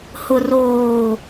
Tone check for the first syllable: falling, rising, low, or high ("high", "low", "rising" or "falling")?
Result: low